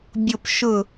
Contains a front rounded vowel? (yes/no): no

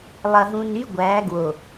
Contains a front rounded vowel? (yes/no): yes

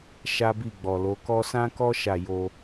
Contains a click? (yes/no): no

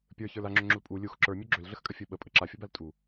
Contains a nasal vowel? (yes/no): no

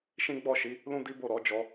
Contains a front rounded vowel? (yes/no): no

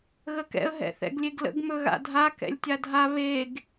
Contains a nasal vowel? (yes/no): no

